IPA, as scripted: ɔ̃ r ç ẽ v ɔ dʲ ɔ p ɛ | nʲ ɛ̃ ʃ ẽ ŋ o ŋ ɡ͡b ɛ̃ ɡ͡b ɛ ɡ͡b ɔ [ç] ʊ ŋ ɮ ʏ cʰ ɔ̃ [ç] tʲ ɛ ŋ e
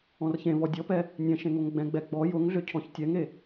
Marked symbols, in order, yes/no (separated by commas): no, yes